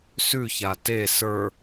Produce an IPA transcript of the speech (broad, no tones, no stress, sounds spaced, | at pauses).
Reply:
s ʉ ç a t e s ə˞